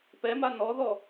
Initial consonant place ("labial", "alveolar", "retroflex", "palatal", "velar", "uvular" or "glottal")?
labial